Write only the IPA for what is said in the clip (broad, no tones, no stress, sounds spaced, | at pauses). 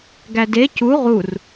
ɡ æ d e c u ʁ u r